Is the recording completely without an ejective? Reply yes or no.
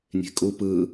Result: no